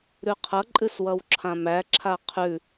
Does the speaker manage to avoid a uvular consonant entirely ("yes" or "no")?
no